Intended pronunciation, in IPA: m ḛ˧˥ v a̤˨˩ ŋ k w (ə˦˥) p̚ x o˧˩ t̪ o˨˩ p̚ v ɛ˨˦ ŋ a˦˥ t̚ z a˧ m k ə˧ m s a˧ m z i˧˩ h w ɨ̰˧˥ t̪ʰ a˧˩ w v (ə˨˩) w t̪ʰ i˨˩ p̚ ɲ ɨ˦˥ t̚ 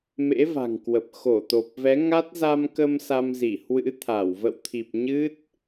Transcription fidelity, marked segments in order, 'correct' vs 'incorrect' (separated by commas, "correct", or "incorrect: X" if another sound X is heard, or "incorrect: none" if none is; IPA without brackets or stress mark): incorrect: ə˨˩, incorrect: ə̰˧˨